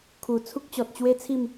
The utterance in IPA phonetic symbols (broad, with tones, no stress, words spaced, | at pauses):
kʰu˨˩ t͡sʰu˦k̚t͡ɕɔ˨t̚t͡ɕwe˦t͡sʰi˥˧m